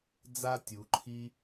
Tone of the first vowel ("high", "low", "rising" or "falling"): high